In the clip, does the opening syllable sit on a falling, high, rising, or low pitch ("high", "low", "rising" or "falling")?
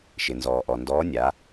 low